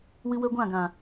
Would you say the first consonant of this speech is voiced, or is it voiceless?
voiced